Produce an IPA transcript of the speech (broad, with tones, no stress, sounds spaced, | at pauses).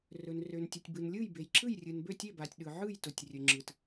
r ɵ˨ n r ø˨ n tʲ ɵ˨ tʲ b ɯ˨ n lʲ ɯ˥˨ j b e˨ j ǁ ɯ˥˨ j rʲ ɯ˨ n b ø˥˨ tʲ e˥˨ b a˨ tʲ ɗ ɯ˨ ʕ ɯ˥˨ j t ʊ˨ tʲ rʲ ɵ˨ ŋ͡ǁ ɯ˨ t